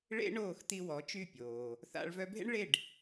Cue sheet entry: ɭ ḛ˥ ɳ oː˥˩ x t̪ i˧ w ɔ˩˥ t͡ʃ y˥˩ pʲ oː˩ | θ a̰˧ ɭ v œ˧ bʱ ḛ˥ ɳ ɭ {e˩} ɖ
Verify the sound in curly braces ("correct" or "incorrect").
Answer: incorrect